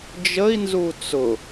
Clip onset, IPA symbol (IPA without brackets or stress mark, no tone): d͡ʒ